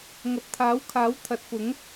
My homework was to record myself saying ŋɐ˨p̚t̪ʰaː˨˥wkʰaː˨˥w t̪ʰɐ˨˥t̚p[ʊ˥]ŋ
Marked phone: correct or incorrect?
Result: incorrect